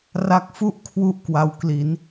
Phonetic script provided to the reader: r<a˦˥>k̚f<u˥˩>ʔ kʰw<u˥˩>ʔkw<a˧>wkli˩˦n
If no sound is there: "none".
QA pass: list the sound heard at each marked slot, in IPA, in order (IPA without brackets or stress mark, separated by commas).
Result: a˦˥, u˥˩, u˥˩, a˧